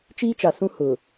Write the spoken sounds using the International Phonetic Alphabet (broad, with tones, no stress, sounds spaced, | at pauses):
t͡ʃ iː˦ t͡ʃ a˨ s ũ˦ h ʊ˨